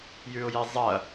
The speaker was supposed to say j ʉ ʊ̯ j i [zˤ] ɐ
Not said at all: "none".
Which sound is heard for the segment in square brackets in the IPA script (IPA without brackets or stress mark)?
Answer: zˤ